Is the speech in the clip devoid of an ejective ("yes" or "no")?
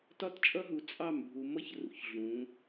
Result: no